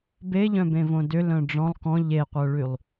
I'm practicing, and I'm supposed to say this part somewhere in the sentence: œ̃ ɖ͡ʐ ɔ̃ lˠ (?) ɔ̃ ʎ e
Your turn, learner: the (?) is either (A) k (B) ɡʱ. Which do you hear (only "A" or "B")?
A